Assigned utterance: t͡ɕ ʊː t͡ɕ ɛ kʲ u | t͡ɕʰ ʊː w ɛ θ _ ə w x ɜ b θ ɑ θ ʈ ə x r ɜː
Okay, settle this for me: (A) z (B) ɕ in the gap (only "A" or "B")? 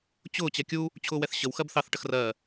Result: B